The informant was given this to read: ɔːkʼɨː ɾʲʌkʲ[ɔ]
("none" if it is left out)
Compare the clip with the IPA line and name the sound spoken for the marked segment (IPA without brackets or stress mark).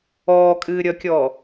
ɔː